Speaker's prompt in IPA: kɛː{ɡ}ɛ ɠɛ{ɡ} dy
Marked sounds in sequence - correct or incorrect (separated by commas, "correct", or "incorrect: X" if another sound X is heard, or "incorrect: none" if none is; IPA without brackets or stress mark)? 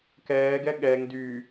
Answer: correct, incorrect: ŋ